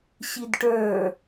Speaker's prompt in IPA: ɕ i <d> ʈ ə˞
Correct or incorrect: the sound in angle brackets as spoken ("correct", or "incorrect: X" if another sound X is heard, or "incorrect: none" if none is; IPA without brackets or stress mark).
correct